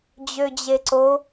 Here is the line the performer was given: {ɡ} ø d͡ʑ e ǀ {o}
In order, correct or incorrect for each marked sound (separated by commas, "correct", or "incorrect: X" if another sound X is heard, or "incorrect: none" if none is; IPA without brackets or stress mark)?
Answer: incorrect: d͡ʑ, correct